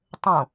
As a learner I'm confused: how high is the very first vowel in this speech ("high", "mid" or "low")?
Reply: mid